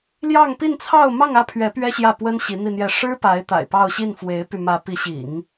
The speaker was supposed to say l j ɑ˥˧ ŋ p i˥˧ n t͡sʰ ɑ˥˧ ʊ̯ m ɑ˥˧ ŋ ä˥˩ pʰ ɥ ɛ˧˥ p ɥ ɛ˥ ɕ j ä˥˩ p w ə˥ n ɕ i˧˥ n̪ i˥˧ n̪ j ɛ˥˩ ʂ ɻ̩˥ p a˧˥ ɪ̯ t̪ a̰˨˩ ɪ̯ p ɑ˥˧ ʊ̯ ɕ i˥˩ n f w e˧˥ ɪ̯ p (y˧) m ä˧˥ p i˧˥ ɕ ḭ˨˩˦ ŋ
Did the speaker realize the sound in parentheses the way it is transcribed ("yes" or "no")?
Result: yes